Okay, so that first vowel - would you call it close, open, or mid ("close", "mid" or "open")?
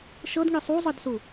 mid